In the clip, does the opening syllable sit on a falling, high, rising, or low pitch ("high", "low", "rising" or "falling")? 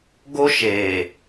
high